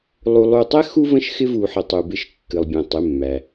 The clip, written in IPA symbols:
lˠu˧lˠu˧tˤɛ˥ xu˥ və̃˥˧ʃxɪ˥vu˧ħɪ˧ tˤu˧bɪ˥˧ʃ kːɨ˧lˠbʲɛ̃˧tˤɪ˧˥˧mːæ˧

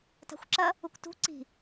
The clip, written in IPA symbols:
ta̤xʷǁɐ | ukʷtṳ ǀi̤

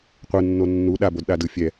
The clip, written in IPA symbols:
qʷɯnːo nːu ɗabodɗa dɯ fʲɛ

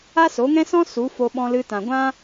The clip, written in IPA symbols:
a˦so˨˦ŋɛ̃˦sɔ̃˦ su˨˦ fo˧ɓɔ̃˧lɨ˧ tã˨ɡʷã˦

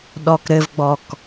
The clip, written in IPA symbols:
ɗɔkɾɘvɡ͡bɔk

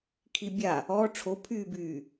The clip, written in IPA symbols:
kʰibʲa | ɔ ʈ͡ʂʰopʰyːbyː

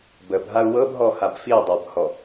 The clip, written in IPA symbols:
bəb ɦau̯wɤbɦɔ habfi dˤɤbhɔ

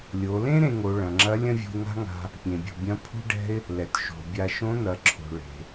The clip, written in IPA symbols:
lʲo˩˧lẽ˥ ɾẽ˧ ŋo˩˧ ɭɐ̃˩ŋ͡ǁɐ˧˥ lʲɐ̃˥vʲṳ˧ɪ̯ŋa̤˥ŋa̤˧ | pʲẽ˩bʲṳ˩bʲɐ̃˧˥pʰṳ˥ ɖɛ̤˥ɪ̯ | lɛ˩tʃo̤˩bʲa˧ ʃõ˧˥n̪ɐ˩˧ǁʰo̤˩ ɭe̤˩

